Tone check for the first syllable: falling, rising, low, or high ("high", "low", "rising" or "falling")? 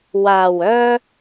low